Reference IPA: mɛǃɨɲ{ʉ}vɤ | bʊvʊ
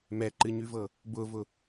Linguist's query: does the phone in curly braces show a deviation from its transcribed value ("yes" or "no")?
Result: no